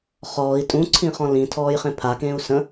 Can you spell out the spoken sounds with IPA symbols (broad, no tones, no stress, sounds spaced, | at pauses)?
χ ɔː i̯ tʼ ũ ǀʰ ĩ χ ɔ̃ l ĩ tʰ ɔː j χ ẽ pʰ a k ẽː u̯ s ə̃